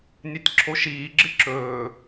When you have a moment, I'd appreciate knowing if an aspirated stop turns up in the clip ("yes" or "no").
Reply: yes